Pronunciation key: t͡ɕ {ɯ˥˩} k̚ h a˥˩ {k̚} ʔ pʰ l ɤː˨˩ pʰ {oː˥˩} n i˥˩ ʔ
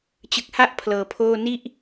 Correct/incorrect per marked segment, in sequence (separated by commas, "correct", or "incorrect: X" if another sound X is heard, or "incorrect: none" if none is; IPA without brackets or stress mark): incorrect: ɯ˨˩, incorrect: none, correct